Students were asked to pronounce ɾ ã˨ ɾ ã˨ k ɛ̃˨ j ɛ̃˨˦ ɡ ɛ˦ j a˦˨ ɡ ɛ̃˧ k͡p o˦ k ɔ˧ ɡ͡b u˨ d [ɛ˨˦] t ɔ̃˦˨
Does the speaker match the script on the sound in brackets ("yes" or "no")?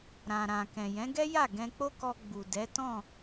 yes